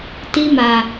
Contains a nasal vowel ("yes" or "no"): no